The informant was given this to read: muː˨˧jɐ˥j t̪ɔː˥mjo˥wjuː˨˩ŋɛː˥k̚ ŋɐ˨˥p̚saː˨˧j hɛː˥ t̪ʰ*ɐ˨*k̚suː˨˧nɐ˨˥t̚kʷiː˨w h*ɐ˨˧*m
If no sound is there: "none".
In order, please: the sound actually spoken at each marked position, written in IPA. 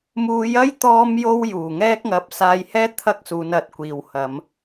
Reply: ɐ˥, ɐ˨˧

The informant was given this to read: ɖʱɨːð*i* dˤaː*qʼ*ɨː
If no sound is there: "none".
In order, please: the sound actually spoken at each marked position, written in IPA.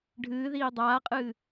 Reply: iː, qʼ

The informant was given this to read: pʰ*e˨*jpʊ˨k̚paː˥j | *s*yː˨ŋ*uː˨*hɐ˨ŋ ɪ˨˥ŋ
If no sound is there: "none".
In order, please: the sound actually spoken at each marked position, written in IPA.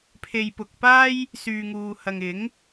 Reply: e˨, s, uː˨

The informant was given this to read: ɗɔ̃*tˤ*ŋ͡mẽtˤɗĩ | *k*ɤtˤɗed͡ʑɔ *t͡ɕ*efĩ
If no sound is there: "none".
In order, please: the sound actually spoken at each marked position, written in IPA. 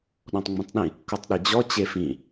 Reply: tˤ, k, t͡ɕ

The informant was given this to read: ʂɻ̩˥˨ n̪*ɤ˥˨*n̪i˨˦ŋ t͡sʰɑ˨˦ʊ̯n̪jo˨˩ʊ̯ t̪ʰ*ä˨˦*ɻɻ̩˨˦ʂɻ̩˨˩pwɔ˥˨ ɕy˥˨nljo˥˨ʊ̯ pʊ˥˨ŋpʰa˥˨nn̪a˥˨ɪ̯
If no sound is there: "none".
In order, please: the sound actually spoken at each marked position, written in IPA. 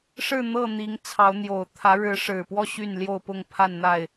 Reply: ɤ˥˨, ä˨˦

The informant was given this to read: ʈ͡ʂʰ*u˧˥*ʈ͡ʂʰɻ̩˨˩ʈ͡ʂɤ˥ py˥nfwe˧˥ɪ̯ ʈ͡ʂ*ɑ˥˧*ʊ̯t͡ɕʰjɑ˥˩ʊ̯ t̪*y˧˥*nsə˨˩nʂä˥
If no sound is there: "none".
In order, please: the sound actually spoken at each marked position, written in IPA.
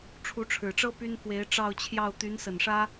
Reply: u˧˥, ɑ˥˧, y˧˥

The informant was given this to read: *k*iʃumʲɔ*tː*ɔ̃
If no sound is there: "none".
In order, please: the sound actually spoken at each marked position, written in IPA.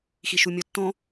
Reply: x, tː

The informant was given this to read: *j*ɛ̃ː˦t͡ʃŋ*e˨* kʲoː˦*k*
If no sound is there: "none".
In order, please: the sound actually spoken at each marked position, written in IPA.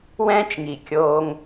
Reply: w, i˨, ŋ

